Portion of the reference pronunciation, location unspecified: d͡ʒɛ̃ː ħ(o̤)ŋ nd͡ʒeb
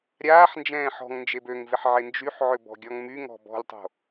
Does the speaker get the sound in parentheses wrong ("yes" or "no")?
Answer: yes